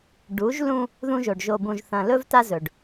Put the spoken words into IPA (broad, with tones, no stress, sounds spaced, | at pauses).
ɖ u˨˦ ʒ l ũ˦ | ð ũ˦ ʒ o˨ ɖ ʒ o˨ b ũ˨ ʒ θ ɐ̃˨ l ɵ˦ v t a˦ z ɵ˨ ɖ